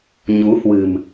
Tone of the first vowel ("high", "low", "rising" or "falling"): rising